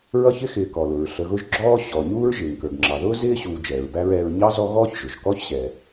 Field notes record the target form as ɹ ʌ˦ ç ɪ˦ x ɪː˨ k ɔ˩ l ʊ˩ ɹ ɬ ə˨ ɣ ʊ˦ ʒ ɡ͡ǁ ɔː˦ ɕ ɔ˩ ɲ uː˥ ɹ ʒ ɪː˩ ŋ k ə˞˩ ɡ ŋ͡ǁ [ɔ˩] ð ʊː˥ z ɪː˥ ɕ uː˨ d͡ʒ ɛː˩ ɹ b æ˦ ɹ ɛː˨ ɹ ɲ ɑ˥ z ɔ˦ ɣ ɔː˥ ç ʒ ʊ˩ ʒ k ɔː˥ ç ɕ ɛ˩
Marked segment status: incorrect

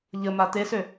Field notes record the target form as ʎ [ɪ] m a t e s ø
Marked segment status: incorrect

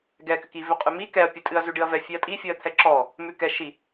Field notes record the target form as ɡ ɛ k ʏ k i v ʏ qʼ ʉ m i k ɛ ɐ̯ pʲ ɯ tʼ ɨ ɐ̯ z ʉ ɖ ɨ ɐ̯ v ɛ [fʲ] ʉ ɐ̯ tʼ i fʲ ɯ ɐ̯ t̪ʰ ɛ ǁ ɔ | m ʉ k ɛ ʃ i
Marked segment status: correct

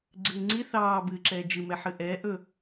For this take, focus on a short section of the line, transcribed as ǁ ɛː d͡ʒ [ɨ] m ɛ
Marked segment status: correct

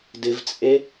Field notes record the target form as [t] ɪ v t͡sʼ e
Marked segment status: incorrect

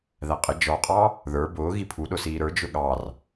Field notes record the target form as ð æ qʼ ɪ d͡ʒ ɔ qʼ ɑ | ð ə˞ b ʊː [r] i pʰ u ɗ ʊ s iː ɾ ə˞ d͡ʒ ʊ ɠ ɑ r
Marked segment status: incorrect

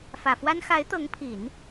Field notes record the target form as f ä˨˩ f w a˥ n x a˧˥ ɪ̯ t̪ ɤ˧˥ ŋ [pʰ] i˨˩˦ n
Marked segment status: correct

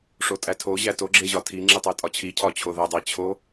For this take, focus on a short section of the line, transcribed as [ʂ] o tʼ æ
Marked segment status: correct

